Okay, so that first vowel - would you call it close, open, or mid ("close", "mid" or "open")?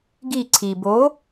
close